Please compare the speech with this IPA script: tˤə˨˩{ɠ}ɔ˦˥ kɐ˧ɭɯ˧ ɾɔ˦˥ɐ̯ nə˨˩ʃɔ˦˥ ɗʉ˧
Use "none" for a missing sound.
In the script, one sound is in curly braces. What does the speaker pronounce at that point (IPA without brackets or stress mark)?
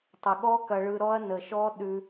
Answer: ɠ